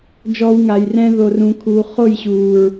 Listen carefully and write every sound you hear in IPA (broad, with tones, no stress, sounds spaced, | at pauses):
d͡ʒ ɔː˧ w ŋ a˨ j r ɛ̃˧ ð o˨ r ũ˨ kʰ uː˨ χ o˦˨ j ɕ uː˨ ɹ